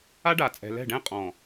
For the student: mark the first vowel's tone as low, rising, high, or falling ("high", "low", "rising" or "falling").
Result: high